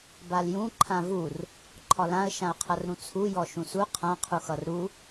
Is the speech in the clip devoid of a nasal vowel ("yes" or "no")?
no